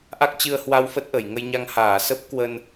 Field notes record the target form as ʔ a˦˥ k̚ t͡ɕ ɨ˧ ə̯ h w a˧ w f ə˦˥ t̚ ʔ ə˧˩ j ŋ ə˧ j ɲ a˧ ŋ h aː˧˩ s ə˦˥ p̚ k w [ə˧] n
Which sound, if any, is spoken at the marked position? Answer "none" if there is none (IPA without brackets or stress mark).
ə˧